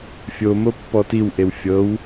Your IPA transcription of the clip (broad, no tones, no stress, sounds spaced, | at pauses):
fʲ o m o pː ɔ t i w ʔ e w fʲ ɤ w